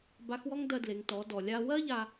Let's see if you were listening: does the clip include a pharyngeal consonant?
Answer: no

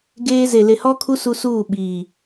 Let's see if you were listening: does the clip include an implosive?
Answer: yes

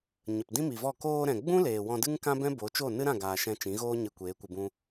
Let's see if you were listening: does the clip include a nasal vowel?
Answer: yes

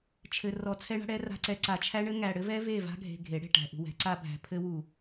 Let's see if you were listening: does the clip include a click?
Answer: yes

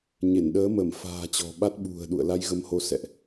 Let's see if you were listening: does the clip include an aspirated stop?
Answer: no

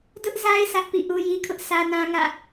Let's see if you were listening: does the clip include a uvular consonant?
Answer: no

